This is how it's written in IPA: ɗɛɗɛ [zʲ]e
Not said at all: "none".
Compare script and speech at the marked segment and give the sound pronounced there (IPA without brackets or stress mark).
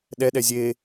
zʲ